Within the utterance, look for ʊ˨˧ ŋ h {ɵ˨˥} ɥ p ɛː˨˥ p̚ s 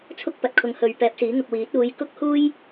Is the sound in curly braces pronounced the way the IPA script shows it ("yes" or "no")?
no